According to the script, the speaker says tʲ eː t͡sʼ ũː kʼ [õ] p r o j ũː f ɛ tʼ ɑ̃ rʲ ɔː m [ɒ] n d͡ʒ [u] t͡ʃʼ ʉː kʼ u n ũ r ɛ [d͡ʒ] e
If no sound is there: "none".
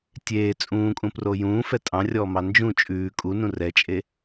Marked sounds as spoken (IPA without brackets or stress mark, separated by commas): ũ, ɑ, ũ, t͡ʃʼ